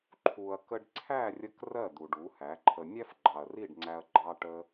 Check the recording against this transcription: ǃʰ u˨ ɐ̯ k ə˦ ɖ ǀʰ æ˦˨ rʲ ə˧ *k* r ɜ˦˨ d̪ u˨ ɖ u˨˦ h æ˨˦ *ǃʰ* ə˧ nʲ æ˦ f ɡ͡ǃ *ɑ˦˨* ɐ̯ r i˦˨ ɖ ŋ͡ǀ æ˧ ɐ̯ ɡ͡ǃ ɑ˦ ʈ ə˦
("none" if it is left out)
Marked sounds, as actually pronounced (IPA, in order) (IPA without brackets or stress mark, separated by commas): k, ǃʰ, ɑ˨